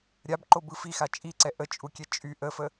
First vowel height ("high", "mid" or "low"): low